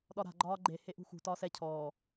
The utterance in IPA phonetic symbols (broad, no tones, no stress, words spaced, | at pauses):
ɗɒɾa̤ ɡ͡ǃɒːɡ͡ǃe heʔṳxṳ tɒːsɛ cʰɔː